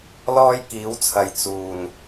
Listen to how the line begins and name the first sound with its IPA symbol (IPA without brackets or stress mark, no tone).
l